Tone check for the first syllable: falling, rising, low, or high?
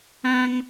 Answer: high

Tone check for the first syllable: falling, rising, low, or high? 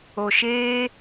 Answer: low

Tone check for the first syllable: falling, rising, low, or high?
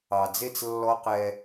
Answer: low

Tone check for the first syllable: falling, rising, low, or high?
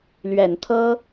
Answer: low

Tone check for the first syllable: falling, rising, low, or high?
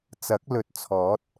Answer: rising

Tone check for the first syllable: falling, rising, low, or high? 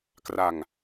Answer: low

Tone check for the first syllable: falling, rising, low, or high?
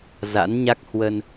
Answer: rising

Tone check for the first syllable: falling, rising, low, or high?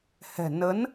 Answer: low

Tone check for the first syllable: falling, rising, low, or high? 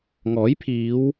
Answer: rising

